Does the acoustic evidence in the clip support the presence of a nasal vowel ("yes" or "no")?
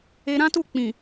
yes